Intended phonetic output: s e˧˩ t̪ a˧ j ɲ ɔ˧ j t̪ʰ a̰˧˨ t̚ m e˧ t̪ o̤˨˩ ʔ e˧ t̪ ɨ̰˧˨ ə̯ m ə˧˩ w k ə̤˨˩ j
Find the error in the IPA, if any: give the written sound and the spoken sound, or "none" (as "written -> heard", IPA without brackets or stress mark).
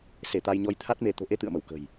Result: a̰˧˨ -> a˦˥